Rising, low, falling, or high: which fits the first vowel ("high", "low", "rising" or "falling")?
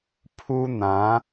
high